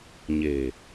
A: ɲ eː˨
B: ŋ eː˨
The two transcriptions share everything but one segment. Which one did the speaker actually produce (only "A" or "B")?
A